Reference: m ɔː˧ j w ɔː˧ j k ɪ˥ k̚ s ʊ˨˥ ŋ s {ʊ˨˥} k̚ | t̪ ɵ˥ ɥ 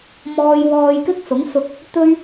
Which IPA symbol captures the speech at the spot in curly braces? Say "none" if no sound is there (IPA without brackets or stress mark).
ʊ˧